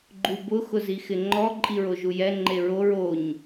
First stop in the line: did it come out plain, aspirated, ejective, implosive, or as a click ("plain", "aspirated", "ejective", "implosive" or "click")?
click